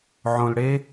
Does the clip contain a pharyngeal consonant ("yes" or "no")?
yes